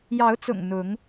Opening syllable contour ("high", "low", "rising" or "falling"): rising